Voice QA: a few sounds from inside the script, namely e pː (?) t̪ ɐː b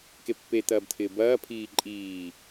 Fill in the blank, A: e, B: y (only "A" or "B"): A